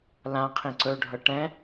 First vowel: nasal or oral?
nasal